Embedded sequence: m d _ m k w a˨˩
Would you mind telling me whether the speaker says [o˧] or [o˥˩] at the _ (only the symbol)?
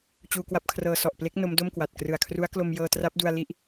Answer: o˥˩